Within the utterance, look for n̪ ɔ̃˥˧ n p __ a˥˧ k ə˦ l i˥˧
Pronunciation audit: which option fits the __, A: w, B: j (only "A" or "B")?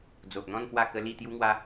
A